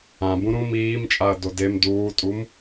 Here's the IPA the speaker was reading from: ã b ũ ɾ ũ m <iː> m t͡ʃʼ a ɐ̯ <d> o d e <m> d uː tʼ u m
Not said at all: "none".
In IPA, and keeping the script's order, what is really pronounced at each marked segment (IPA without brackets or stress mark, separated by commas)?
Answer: iː, d, m